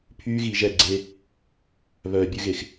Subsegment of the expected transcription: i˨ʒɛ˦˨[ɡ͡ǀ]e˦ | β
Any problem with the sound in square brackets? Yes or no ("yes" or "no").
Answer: no